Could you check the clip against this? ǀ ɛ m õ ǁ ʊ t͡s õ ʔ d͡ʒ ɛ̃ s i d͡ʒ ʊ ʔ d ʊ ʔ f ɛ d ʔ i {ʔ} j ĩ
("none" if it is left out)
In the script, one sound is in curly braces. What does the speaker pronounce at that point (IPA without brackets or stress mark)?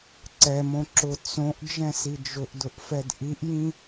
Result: ʔ